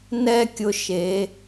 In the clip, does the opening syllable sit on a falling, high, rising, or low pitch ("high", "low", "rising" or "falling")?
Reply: falling